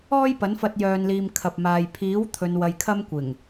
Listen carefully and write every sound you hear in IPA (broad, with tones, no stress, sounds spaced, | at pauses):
ɔː˥ j p ɐ˨˥ n f ɐ˧ t̚ j œː˨ n l iː˨ m kʰ ɐ˨ p̚ m aː˨ j pʰ iː˨˥ w t̪ʰ ɵ˨˧ n w ɐ˧ j kʰ ɐ˥ m kʷ ɪ˨˩ ŋ